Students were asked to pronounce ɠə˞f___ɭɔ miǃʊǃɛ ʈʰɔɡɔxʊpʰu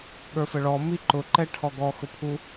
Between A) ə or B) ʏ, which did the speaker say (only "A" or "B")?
A